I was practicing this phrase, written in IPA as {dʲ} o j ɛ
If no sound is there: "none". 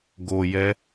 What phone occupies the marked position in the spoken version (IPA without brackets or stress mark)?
ɡ